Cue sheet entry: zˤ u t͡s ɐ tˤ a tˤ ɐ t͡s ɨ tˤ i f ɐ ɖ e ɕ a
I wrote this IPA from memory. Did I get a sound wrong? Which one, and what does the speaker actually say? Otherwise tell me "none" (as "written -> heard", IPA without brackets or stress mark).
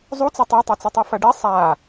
ɕ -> sˤ